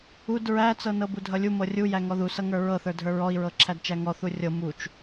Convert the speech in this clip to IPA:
u d ɹ æ t͡s ɤ n ɤ b u dʱ ʌ lʲ u m ɤ rʲ u j æ ŋ ɔ ð u s ʌ ŋ ə˞ ɹ ɤ θ ə˞ dʱ ə˞ ɹ ɔ i̯ ɹ ɤ ǁʰ æ d t͡ʃ æ ŋ ɔ θ u rʲ ɤ m u t͡ʃ

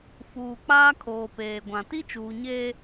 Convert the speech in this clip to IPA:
f uː˨ k͡p aː˦ kʰ oː˨ p eː˨ ɡʷ ã˨ t i˦ t͡ʃ uː˨ ɲ eː˦

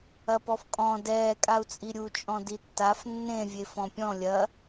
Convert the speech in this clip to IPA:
ɐ p ɔ f kʼ ɔ̃ d ɛː kʼ a u̯ t͡sʼ i ɾʲ u t͡ʃʼ ɔ̃ d i tː a f nː ẽ vʲ e f ɔ̃ pʲ ɔ̃ lʲ ɐ

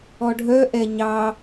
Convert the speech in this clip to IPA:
ɔ ɖʱ œ ʔ ɛ ɲ ɑ

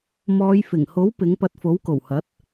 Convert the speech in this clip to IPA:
m ɔː˨˧ j f ɪ˨˩ ŋ h o˨˥ w p ɪ˨˥ ŋ p ɐ˧ t̚ f o˨˥ w k o˨˩ w h ɐ˨˥ t̚

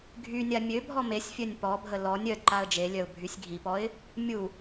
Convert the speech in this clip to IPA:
ɡʱ y nʲ a mʲ ø bʱ ɔ m e sʲ fʲ œ nʲ p ɔ bʱ ə l ɔ nʲ œ d ǃ a ə̯ d͡ʒ e lʲ œ ʊ̯ bʱ y sʲ ɡʱ i p ɔ ɪ̯ | mʲ u

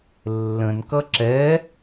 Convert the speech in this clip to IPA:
lː ə̃ n k ʌ ǁ ɛ

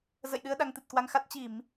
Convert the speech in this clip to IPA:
z ə̰˧˨ j ɗ ɨ˧ ə̯ ɗ a˧ ŋ t̪ ɨ˨˩ t̚ k w a˧ ŋ x a˦˥ t̚ t͡ɕ i˧˩˨ m

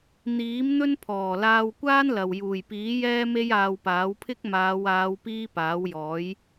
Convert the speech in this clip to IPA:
n̪ iː˨˥ m n̪ ɵ˥ n pʰ ɔː˨˩ l aː˧ w kʷ aː˥ n l ɐ˨ w j uː˨˩ j p iː˨˥ j ɛː˥ m e˥ j aː˧ w p aː˨˥ w pʰ ɪ˥ k̚ m aː˨˧ w aː˨˧ w p iː˥ p aː˨˥ w j ɔː˨˥ j

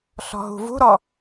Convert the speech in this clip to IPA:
ɬ ɔ̤ ɦ ṳ v ṳ ɾ ɔ

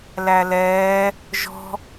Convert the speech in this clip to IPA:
l æ l ɛː | ʒ ɔ̤

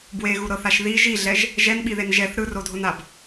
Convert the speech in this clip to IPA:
b w e ɣ u ɾ ɤ θ a ʃ ð i ʒ i ɮ ɛ ʒ | ʒ ɛ n ɓ i ð e n ʒ ɛ θ ɾ ɯ r o dʱ o n a b

